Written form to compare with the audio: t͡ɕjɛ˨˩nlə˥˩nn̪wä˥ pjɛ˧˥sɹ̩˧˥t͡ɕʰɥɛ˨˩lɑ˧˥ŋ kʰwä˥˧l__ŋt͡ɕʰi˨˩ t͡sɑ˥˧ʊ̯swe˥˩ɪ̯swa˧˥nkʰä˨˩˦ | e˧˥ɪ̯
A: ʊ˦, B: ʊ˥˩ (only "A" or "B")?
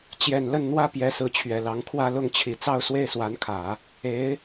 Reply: B